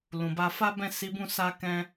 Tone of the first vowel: low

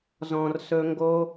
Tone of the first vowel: low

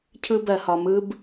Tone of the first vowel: high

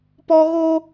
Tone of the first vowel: high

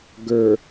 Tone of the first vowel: low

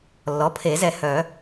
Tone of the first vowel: rising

